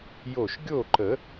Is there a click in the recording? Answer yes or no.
yes